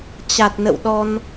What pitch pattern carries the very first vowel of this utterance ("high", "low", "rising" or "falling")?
low